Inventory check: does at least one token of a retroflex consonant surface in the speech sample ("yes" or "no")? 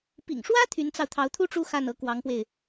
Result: yes